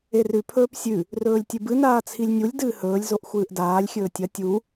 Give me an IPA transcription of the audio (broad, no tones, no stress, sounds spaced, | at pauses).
e r ʉ pʰ ɵː p sʲ ʉ | r ɵː lʲ tʲ ɨ b ɨ n aː t͡sʰ i lʲ nʲ u lʲ d ɨː h ɵː lʲ z o ʔ xʷ ɨː ʔ d aː lʲ xʲ ɵː tʲ ɐ tʲ u